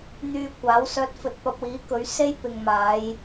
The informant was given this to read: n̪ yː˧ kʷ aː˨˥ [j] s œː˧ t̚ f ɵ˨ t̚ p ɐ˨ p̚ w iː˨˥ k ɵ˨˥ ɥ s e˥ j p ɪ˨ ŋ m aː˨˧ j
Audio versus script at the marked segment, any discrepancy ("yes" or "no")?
yes